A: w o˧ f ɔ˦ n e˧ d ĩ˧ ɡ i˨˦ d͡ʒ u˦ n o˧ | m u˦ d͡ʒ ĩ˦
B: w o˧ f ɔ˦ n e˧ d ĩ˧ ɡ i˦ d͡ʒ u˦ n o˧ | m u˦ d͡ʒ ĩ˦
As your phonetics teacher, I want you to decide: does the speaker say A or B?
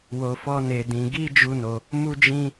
B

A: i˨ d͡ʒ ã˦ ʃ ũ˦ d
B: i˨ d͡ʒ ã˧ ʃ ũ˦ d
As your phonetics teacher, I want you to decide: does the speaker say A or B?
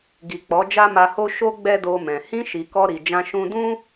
B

